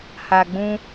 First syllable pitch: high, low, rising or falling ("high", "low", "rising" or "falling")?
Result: low